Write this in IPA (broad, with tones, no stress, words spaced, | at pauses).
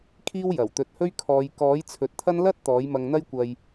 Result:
kʰiː˥wjɐ˨˩wt̪ɵ˧t̚hɵ˥ɥ kʰɔː˨˧j kɔː˨˥j t͡sʰɵ˨t̚t̪ʰɐ˥n lɐ˥t̚ t̪ɔː˨˥jmɐ˧ŋn̪ɐ˥j kʷɐ˧j